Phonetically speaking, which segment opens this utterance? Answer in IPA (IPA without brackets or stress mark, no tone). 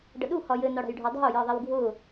ɖ